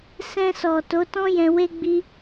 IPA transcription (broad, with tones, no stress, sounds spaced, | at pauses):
s ɛ̃˧ s ɔ˨ t o˨˦ t ɔ̃˦ j ɛ̃˧ w e˦ ɡ͡b i˦